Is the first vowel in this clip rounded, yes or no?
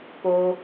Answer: yes